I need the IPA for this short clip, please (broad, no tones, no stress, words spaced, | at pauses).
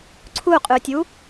ǀʰuqʼʉtʲu